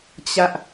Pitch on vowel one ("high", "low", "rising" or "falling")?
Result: high